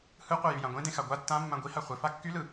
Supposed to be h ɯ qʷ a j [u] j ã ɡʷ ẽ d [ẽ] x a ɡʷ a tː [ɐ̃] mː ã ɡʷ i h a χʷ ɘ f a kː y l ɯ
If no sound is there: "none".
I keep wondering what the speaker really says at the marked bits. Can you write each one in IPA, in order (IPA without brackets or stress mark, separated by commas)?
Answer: y, ẽ, ã